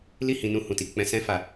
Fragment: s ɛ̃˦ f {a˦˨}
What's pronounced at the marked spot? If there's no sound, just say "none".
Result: a˦˨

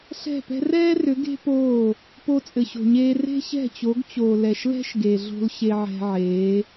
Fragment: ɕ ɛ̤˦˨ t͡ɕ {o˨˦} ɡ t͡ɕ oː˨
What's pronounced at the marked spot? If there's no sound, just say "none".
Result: o˨˦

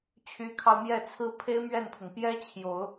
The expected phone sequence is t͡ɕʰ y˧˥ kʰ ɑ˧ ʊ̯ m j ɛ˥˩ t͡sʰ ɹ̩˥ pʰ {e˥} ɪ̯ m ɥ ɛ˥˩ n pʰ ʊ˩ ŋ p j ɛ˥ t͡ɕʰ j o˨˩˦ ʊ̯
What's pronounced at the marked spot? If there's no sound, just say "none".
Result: e˥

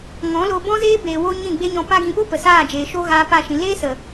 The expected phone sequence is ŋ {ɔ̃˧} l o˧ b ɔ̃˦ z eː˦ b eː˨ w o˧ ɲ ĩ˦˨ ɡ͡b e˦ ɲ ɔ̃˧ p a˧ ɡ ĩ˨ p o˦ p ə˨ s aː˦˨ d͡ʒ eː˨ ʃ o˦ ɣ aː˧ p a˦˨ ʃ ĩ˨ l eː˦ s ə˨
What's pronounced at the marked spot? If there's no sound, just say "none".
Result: ɔ̃˨˦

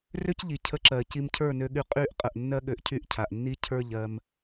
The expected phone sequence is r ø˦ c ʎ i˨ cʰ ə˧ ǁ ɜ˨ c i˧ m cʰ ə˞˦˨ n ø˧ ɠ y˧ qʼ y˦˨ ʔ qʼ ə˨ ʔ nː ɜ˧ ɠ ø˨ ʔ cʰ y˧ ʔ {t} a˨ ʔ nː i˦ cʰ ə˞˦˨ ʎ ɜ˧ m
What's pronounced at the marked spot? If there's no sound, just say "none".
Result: cʰ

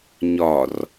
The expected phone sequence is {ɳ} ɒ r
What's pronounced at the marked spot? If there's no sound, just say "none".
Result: ɲ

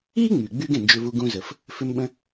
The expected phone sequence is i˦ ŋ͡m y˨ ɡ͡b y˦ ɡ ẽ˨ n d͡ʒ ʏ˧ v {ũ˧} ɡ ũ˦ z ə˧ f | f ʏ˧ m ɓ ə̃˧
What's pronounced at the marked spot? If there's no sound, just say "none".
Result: u˧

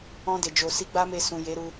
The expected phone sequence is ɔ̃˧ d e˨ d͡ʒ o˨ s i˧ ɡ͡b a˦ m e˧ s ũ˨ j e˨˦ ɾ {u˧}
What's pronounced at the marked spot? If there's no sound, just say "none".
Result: u˧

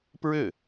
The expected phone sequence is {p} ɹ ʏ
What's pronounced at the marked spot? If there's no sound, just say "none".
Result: p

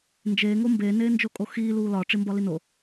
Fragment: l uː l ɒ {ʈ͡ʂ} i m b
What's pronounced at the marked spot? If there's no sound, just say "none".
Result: ʈ͡ʂ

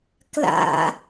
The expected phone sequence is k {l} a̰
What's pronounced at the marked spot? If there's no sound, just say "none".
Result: l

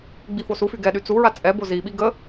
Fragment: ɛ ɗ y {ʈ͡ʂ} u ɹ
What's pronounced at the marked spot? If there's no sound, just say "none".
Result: t͡s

